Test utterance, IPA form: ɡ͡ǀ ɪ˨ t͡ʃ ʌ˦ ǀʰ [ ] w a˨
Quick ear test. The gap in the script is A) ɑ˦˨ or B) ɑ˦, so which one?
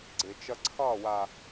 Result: A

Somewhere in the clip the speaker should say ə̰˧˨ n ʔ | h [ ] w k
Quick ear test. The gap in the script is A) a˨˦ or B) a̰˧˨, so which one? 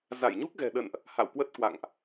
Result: B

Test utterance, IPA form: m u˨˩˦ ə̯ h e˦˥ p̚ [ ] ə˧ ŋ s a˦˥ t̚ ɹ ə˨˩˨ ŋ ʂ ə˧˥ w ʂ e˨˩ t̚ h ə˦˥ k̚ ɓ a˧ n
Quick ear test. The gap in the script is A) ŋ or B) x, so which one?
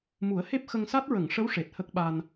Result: B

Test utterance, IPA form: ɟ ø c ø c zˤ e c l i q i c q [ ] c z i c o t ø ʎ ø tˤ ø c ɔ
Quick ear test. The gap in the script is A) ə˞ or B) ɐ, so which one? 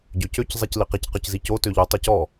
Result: A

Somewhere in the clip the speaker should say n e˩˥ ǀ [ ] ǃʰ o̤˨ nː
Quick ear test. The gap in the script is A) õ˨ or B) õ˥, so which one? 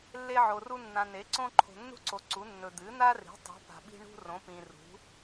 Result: B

